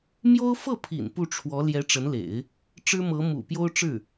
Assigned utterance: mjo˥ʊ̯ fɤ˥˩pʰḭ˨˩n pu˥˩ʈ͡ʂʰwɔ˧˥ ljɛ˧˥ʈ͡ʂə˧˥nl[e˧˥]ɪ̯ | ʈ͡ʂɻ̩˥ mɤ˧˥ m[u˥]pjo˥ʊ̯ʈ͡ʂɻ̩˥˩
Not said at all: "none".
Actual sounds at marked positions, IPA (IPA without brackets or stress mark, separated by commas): ḛ˨˩˦, ṵ˨˩